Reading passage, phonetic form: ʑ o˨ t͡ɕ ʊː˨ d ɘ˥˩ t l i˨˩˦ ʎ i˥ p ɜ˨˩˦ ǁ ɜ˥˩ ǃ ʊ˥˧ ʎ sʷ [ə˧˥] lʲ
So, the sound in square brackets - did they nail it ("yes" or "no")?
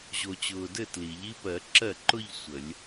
no